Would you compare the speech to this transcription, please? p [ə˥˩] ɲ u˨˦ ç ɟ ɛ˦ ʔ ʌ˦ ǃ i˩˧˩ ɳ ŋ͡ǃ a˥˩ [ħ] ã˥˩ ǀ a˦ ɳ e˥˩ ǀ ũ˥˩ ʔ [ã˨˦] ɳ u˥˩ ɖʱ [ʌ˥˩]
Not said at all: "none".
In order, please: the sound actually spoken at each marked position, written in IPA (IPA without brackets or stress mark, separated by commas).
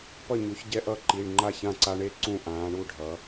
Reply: ʌ˥˩, ç, ãː˨˦, ʌ˨˦